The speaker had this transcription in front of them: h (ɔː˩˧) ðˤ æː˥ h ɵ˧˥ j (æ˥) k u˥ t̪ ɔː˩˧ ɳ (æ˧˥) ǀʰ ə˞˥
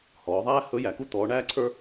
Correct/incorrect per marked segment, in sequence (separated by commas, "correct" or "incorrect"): correct, incorrect, incorrect